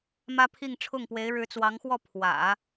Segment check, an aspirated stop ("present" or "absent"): present